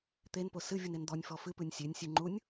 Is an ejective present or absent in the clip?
absent